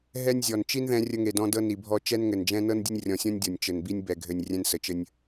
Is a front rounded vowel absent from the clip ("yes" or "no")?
yes